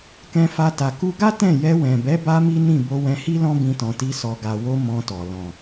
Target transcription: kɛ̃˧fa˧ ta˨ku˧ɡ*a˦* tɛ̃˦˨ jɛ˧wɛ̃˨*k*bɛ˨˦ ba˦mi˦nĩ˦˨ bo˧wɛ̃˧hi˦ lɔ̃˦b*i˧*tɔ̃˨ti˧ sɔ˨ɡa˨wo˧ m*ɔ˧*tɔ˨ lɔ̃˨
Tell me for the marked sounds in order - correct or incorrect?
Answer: correct, incorrect: none, incorrect: ĩ˧, incorrect: ɔ̃˧

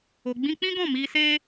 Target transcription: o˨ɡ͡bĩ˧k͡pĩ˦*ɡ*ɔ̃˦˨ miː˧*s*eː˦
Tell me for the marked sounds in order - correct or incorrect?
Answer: correct, correct

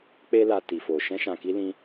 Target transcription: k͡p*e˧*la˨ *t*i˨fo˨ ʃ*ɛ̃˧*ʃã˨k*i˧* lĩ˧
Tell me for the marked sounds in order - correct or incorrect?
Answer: correct, correct, correct, correct

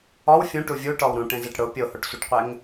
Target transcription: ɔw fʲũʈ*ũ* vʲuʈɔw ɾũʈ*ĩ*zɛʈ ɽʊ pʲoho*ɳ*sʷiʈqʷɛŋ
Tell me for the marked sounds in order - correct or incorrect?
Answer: incorrect: u, incorrect: ẽ, incorrect: ʈ

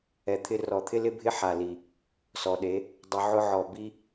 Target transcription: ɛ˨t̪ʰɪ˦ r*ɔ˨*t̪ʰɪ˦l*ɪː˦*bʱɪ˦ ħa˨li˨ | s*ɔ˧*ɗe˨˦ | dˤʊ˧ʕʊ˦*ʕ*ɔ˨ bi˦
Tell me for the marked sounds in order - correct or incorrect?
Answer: correct, incorrect: ɪ˦, incorrect: ɔ˨, correct

